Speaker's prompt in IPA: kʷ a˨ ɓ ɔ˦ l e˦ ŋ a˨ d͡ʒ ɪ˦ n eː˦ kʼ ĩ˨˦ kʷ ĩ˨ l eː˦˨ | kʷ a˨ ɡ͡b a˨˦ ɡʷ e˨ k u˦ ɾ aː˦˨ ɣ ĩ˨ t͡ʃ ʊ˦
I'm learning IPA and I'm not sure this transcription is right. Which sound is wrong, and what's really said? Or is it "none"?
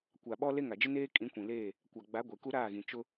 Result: none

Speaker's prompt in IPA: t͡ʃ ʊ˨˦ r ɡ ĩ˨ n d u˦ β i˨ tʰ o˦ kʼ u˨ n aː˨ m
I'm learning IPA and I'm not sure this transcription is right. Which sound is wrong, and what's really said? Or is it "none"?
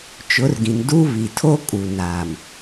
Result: none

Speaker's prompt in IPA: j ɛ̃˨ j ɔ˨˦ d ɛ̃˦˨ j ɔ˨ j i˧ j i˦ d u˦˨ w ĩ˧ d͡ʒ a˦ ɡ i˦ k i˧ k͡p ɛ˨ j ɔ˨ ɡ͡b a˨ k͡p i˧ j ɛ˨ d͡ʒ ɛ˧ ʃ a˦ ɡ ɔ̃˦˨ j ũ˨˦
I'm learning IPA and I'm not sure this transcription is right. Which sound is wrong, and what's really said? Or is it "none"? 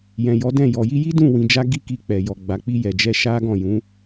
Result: u˦˨ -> ũ˦˨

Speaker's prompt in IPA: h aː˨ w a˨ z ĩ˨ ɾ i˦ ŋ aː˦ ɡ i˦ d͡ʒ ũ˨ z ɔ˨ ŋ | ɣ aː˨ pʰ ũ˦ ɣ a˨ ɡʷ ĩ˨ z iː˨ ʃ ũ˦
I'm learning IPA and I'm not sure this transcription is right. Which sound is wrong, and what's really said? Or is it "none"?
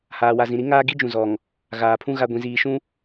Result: none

